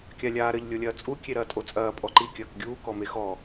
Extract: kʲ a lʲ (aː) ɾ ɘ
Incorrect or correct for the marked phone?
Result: correct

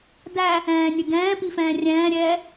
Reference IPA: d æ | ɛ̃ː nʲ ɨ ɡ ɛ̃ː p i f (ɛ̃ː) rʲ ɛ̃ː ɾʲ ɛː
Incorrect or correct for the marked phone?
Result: correct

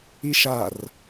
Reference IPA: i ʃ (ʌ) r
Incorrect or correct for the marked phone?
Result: incorrect: a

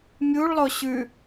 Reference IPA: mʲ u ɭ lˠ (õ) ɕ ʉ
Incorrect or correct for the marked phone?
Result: incorrect: o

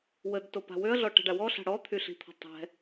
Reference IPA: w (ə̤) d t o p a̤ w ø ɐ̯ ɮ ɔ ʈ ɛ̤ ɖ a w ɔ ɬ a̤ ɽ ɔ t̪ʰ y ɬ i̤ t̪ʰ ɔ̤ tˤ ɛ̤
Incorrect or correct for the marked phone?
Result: incorrect: ə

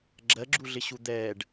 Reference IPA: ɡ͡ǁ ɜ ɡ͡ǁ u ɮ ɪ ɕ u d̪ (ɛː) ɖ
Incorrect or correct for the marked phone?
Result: correct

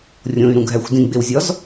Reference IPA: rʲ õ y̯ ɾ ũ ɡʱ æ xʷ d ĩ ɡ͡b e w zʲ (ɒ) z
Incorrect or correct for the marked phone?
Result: correct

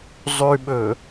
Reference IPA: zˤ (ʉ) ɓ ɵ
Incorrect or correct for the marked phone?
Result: correct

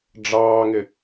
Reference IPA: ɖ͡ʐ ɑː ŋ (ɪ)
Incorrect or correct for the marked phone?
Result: correct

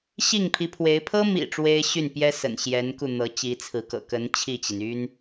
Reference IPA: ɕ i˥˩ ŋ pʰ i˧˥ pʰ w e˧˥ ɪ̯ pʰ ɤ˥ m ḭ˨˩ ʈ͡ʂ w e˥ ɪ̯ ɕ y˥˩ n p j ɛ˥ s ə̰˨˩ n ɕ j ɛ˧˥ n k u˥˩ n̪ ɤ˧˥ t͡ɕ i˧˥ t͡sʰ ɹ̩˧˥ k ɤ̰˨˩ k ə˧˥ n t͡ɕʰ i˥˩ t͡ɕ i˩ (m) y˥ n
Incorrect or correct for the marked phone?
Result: incorrect: n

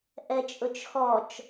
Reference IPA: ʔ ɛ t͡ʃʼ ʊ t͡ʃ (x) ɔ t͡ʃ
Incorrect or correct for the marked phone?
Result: correct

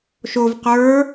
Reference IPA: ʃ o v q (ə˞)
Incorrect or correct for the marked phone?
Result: correct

